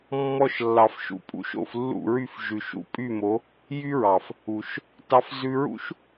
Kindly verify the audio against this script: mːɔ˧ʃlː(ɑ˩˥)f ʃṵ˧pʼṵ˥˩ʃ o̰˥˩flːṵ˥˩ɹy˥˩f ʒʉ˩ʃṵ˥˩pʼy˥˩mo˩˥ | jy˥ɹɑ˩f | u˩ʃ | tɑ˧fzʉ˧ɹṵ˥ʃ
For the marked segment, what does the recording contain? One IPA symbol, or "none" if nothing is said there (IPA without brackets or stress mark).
ɑ˩